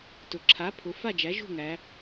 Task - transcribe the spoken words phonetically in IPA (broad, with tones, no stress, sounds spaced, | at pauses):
t ʊ˩ ǁʰ a˩˥ pʰ ʊ˩˧ f a˥˨ d͡ʒ æ˩˥ ʒ ṳ˥˨ ŋ æ˩˧